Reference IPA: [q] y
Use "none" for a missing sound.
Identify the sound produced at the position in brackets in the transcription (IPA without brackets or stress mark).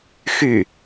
x